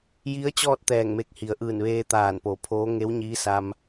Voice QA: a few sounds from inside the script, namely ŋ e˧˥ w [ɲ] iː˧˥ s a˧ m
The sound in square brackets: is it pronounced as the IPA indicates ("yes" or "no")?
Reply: yes